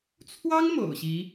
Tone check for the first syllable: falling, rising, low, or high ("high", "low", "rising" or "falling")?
high